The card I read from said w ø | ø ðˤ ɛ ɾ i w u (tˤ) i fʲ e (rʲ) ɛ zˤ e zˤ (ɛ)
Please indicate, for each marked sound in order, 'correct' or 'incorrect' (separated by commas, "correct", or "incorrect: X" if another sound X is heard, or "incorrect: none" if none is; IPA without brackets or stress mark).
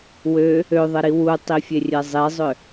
correct, correct, incorrect: ʏ